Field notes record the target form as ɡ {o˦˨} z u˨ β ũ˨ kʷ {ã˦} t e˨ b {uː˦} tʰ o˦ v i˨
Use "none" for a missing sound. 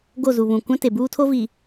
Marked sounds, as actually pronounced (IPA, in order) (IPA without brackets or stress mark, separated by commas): o˦˨, ã˦, uː˦